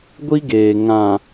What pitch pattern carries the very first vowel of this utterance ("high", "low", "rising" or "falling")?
high